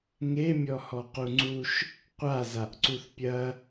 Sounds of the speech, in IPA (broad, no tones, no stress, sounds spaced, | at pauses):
ŋ e mʲ ɔ h ɔ q u ŋ͡ǀ u ʃ | qʷ a z a ʔ ǀ u θ pʲ ɐ